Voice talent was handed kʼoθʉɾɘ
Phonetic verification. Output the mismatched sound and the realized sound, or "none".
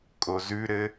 θ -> z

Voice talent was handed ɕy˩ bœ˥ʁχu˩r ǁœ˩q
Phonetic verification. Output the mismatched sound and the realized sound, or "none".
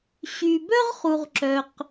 r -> ʁ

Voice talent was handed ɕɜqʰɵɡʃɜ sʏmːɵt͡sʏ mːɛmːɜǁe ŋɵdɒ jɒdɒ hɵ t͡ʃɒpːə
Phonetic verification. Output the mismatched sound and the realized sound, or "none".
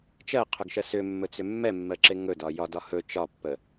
ɕ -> t͡ʃ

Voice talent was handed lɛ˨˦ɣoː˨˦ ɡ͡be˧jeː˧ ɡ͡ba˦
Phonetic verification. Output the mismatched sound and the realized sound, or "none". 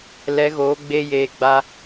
e˧ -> e˦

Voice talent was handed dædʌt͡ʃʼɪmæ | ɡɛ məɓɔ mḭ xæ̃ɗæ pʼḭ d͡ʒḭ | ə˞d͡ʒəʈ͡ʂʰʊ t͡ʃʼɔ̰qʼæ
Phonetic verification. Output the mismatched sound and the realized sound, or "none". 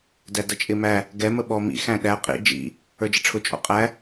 pʼ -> qʼ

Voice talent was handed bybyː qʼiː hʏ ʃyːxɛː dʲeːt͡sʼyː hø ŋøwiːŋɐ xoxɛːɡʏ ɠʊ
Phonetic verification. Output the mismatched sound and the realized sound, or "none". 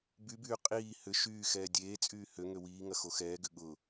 none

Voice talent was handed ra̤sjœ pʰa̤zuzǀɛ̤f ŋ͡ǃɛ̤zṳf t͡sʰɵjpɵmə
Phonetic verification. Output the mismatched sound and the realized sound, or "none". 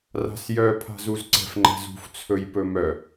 ə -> œ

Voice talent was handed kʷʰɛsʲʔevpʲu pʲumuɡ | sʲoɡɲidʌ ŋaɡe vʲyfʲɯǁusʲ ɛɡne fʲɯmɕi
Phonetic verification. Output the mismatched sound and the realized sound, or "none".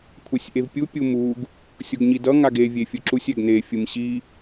y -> e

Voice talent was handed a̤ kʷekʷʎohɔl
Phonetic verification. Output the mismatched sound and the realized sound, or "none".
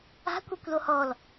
ʎ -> l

